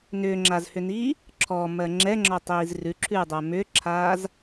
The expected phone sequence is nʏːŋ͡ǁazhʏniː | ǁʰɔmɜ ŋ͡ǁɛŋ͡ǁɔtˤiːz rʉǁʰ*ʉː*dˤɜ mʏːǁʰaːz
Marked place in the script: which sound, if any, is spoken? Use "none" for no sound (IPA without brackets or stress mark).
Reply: ʉː